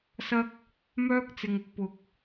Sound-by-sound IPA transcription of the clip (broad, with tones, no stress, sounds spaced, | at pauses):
s ɐ˥ k̚ | m œː˥ k̚ t͡s ɪ˨ ŋ ʊ˧ k̚ p ʊ˨ k̚